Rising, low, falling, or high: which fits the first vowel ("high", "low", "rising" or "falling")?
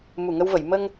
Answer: low